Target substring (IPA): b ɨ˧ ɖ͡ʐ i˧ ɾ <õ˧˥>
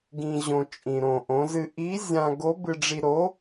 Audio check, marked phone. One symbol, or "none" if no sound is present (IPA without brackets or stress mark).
o˧˥